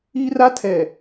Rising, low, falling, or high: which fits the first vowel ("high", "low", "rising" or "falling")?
high